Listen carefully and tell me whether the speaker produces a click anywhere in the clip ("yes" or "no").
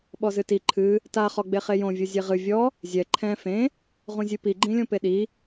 yes